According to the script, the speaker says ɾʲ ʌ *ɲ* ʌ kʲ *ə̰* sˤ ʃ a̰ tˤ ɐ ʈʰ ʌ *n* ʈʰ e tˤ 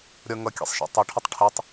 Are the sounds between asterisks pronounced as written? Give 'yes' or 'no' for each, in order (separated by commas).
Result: no, no, no